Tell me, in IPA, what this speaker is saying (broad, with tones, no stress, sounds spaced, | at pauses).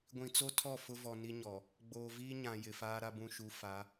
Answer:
ɡʷ ĩ˨ t͡s o˦ tʰ ɔ˦˨ f ʊ˦ v ɔ˨ n i˦ ɲ ɔ˨ | ɡ͡b oː˨ v iː˦ ɲ ã˨ j ɪ˨ f aː˦ ɾ a˦ b ũ˨ ʃ u˨˦ f a˨˦